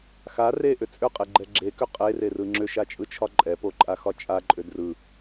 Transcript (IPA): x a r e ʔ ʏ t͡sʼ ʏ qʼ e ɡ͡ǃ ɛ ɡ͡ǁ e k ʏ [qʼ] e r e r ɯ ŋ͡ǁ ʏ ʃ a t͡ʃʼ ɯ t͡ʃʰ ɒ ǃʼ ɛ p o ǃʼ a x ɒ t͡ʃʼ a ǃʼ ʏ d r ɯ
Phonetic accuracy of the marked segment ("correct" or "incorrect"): correct